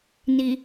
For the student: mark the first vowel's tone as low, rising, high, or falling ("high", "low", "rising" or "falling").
low